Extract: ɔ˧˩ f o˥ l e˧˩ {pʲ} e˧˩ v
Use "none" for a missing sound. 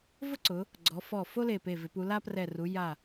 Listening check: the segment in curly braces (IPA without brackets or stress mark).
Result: p